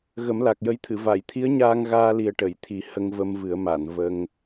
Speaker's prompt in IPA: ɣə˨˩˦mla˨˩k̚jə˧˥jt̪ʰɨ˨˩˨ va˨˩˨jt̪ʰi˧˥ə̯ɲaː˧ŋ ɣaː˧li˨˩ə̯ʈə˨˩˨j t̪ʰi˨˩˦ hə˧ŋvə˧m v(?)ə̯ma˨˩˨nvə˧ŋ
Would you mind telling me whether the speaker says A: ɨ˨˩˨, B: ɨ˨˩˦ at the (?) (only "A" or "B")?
B